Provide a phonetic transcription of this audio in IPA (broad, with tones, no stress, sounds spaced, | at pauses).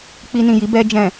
k͡p i˧ n ĩ˨ j i˨˦ b ɛ˧ d͡ʒ ɛ̃˨